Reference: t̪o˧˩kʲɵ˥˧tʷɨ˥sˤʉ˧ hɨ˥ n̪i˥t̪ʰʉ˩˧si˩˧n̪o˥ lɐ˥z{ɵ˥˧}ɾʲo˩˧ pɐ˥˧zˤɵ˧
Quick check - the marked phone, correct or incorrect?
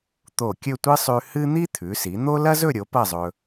correct